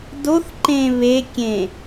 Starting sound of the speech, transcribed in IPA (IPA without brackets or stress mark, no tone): d